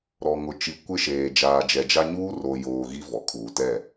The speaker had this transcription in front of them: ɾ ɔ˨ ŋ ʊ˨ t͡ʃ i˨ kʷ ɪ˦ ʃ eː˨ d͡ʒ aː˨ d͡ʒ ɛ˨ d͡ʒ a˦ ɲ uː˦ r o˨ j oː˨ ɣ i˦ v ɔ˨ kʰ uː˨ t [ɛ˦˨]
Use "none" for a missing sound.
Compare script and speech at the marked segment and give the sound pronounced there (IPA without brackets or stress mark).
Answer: ɛ˦˨